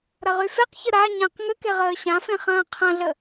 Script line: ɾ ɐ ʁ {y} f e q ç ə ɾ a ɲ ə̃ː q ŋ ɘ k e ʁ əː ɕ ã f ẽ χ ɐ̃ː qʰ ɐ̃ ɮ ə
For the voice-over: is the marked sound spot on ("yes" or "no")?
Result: yes